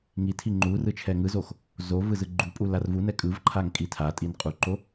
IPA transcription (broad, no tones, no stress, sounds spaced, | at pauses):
ŋ i tʰ i ŋ͡ǃ u r ɯ t͡ʃʰ ɛ ŋ ɯ z o x | z o v ɯ z ɯ ɡ͡ǃ u pʼ u l a r v u n ɛ kʼ ɯ v ǃʰ a ŋ kʼ i tʰ a tʼ i n qʼ u ǃ o